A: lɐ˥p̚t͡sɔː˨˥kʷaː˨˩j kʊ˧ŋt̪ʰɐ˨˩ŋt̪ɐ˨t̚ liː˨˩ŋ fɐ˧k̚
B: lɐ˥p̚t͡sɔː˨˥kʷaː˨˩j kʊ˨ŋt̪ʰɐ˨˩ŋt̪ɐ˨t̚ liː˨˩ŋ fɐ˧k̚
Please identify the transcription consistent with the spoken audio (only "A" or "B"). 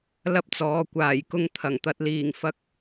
A